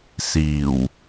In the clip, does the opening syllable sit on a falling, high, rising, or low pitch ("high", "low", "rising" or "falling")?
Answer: low